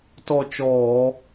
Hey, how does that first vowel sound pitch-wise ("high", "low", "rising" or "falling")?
falling